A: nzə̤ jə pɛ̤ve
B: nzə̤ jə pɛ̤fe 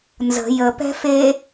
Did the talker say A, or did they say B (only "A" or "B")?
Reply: B